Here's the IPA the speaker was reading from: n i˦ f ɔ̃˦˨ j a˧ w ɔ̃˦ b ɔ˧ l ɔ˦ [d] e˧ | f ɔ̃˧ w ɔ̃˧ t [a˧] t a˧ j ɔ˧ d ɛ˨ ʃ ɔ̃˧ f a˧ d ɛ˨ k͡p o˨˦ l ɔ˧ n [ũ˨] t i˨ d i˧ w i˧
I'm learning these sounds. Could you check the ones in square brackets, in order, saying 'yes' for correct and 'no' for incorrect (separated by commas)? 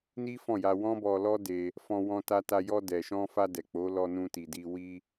yes, yes, no